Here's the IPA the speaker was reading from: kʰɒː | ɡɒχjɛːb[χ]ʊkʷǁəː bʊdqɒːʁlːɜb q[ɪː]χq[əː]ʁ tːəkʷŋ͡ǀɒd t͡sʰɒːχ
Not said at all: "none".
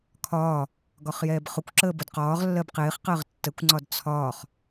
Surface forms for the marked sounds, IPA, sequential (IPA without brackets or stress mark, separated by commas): χ, ɪː, əː